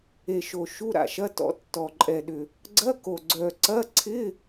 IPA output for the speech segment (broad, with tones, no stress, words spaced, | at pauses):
e˨˩ʃo˨˩ ʃu˧˥˧ɾa̰˨˩ʃɐ˧˥˧ tɔ̰˨˩tːɔ˨˩ǃʼɛ˨˩ɗʏ˨˩ | ɡ͡ǀɐ˧˥˧ko˨˩ ɡ͡ǀœ˨˩ǀɐ˧˥˧ǀʰɪ˧˥˧